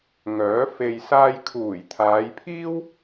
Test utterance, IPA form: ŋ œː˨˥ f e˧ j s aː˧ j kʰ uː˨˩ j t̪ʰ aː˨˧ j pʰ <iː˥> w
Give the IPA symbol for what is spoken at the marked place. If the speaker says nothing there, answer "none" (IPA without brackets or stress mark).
iː˥